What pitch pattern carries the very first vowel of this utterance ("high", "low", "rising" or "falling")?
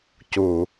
low